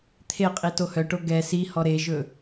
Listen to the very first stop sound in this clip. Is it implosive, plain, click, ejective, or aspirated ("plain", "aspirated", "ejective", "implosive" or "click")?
aspirated